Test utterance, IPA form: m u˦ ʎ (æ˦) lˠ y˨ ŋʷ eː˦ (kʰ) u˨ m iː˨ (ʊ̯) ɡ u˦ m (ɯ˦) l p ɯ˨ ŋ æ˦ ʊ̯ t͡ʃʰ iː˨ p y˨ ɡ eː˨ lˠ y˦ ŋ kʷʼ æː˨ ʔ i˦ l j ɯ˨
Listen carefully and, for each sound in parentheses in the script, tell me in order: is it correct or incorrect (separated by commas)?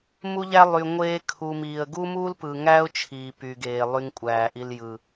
correct, correct, incorrect, incorrect